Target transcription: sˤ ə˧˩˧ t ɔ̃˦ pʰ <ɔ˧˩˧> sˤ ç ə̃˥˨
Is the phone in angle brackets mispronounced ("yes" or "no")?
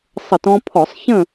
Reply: no